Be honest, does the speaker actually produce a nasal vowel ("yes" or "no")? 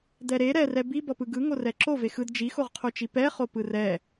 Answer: no